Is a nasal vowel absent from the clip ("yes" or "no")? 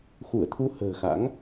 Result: yes